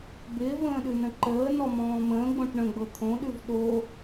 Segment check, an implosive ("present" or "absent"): present